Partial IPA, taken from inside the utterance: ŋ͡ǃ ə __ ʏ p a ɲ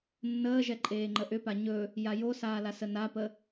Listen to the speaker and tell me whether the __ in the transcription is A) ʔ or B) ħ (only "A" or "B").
A